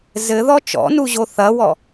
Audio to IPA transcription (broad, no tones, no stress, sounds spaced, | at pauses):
z ɘ ð ɔ t͡ʃ ɔ̰ n u ʑ o θ ɐ w ɔ